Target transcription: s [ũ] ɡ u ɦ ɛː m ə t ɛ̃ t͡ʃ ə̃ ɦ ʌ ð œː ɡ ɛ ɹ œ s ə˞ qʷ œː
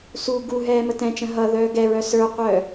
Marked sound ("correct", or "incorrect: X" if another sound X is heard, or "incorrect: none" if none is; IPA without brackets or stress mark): incorrect: u